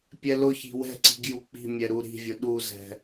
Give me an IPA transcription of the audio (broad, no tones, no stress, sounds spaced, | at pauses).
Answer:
pʲ ɛ l ʊ ç i̤ w ɛ̤ ǀ i̤ ɡ j u k͡p i̤ mʲ ɛ ɾ u ɾ i̤ vʲ ʊ ɗ u z ɛ̤